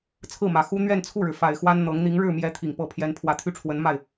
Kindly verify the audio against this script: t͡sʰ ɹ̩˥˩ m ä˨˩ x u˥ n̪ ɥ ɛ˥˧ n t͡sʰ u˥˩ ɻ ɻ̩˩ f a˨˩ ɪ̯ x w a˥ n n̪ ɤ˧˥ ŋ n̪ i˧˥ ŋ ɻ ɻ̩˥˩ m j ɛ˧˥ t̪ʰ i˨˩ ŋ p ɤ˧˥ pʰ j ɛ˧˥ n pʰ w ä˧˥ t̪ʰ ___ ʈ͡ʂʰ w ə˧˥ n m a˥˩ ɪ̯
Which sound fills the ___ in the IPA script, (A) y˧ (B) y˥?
B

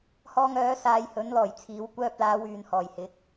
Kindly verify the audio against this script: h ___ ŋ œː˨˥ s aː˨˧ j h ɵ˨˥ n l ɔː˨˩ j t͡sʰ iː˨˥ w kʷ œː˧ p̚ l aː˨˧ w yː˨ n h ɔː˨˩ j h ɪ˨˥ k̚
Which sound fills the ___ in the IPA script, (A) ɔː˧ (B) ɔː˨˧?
A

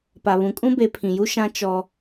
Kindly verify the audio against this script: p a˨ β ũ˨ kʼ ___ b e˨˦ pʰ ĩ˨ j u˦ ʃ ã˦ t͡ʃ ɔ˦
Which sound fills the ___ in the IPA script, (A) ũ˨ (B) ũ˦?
B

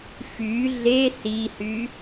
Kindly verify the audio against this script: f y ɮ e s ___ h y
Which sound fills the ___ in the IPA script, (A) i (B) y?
A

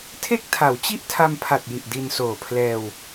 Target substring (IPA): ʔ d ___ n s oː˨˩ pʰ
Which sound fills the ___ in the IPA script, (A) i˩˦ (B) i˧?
B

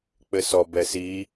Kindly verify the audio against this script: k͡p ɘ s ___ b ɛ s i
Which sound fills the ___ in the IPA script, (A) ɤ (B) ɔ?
B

